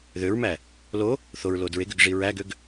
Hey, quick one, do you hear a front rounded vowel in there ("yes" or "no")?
yes